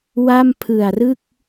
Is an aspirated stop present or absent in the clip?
present